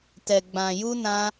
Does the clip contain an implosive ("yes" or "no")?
no